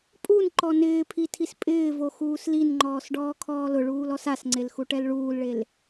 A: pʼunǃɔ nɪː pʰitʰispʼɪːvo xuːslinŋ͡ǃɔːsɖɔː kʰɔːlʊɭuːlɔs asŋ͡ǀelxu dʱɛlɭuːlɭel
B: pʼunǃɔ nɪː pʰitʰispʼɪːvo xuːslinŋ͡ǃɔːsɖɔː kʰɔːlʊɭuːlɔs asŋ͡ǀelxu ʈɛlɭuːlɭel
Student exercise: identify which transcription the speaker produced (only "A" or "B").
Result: B